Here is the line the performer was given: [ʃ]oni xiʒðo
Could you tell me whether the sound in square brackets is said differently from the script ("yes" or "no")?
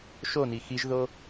no